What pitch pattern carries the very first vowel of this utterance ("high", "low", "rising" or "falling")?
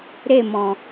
falling